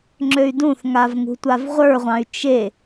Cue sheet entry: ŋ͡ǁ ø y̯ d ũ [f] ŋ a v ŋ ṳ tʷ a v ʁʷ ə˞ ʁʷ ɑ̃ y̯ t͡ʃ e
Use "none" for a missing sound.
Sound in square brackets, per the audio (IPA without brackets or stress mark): θ